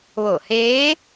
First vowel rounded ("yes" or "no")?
yes